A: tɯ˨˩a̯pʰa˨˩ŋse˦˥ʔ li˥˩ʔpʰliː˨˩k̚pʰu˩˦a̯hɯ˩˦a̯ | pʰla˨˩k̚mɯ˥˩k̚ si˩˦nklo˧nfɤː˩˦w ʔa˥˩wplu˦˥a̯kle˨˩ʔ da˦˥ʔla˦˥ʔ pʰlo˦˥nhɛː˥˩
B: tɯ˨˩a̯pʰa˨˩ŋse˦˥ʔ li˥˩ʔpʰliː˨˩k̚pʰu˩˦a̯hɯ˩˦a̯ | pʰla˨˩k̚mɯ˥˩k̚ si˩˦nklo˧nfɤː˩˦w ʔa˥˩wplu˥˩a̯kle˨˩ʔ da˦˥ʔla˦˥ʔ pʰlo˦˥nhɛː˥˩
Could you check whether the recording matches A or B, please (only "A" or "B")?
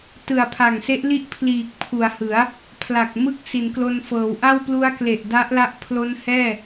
A